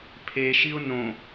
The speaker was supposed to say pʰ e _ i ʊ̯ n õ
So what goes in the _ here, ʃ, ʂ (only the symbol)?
ʃ